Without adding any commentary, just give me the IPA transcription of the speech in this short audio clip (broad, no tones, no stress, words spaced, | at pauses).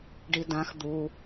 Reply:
ɖidãx d̪u